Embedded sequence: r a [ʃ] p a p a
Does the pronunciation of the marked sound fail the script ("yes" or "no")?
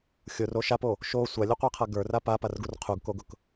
yes